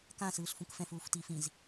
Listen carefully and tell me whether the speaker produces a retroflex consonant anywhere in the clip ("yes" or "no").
no